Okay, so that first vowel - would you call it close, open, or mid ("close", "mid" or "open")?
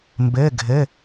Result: mid